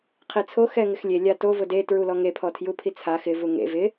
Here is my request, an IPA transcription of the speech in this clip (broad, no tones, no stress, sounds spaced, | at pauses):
qʰ i t͡sʰ o x ɛ ŋ ɪ x lʲ e lʲ a t o v ʊ d e t ɹ u l ɔ ŋ e pʰ ɔ tʰ j u pʰ i t͡sʰ a x ɪ v u ŋ ḛ v ɪ